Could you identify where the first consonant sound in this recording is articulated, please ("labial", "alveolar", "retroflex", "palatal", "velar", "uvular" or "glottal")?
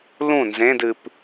alveolar